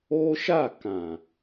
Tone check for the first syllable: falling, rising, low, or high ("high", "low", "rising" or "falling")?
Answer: high